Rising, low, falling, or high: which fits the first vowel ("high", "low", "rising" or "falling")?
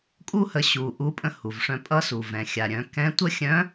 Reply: high